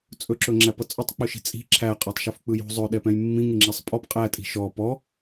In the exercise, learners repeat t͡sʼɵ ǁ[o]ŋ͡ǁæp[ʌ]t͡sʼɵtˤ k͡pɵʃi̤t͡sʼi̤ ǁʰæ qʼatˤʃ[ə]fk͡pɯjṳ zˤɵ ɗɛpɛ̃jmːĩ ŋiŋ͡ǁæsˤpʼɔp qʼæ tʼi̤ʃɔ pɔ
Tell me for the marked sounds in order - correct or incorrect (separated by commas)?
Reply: incorrect, correct, incorrect